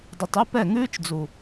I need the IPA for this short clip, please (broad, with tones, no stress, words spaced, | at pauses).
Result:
dˤi˨tˤʉ˦ pɛ˦˨ŋʉː˦t͡ʃd͡zu˨